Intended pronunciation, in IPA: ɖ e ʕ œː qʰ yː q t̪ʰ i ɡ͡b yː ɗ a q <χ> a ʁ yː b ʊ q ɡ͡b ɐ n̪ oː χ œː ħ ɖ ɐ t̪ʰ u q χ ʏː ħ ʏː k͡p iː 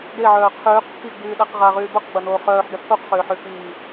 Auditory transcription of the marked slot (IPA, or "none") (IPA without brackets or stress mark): ʁ